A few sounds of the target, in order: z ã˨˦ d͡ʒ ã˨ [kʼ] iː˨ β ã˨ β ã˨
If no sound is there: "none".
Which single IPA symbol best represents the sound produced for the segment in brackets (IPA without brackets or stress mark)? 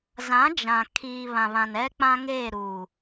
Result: kʰ